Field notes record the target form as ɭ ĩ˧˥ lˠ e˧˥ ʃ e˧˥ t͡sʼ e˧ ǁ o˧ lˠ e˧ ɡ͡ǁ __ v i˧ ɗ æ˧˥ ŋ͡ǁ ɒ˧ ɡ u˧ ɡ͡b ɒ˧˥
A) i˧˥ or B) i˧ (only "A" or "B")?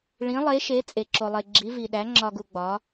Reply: A